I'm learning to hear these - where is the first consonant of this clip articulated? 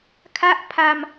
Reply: velum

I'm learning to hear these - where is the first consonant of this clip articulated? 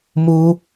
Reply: lips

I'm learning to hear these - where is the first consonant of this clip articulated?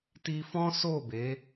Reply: tongue tip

